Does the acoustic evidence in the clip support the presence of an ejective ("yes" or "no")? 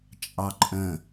yes